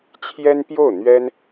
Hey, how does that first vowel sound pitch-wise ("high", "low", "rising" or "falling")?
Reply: high